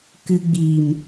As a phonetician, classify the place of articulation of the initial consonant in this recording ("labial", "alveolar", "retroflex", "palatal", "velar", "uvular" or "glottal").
velar